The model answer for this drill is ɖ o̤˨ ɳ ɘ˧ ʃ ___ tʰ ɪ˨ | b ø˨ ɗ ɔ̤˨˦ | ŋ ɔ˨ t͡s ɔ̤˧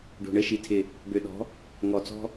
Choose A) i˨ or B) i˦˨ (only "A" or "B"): A